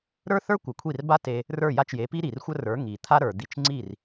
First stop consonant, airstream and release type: plain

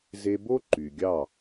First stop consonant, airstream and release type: plain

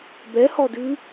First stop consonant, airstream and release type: plain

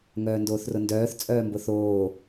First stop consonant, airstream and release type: plain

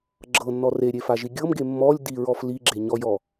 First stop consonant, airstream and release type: click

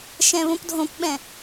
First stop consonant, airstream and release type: plain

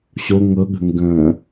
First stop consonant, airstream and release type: implosive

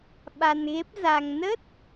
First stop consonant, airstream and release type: implosive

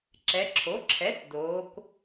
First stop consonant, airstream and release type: click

